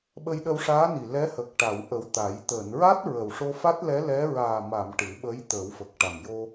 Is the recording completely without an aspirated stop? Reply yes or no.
yes